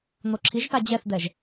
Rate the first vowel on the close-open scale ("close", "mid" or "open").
mid